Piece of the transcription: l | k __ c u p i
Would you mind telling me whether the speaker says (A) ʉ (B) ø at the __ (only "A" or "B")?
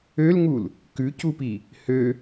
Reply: A